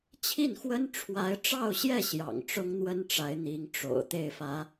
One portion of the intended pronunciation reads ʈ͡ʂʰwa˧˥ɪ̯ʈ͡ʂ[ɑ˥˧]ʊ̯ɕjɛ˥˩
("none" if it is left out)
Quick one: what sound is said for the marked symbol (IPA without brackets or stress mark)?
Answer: ɑ˥˧